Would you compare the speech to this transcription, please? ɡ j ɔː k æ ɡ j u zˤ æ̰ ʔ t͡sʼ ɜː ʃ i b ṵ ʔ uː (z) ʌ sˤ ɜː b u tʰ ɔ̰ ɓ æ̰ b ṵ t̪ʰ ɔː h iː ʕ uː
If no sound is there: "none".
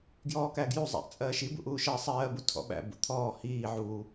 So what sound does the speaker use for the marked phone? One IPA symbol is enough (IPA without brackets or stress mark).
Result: ʃ